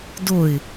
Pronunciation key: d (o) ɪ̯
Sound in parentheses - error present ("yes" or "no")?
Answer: no